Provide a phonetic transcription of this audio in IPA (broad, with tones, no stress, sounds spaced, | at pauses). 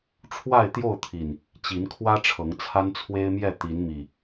ʈ͡ʂʰ w a˥˨ ɪ̯ t̪ j o˥˨ ʊ̯ t̪ʰ i˨˩ n | t͡ɕ i˨˦ n kʰ w ä˦ ʈ͡ʂʰ ɤ˨˦ ŋ t͡sʰ a˦ n t͡sʰ w e˦ ɪ̯ m j ɛ˥˨ t̪ i˨˦ n m i˨˩